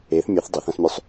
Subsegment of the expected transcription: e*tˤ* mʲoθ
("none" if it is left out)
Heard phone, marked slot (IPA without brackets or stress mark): θ